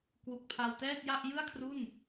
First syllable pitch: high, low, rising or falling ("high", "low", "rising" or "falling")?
low